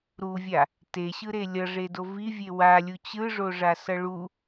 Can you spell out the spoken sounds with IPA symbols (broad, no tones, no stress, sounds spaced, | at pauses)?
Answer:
ɾ u vʲ a | t e ɕ ɯ ɾ e lʲ ʌ ʐ e d o v i vʲ e w a lʲ u t͡ɕ ɯ ʐ o ʐ a s ʌ ɭ u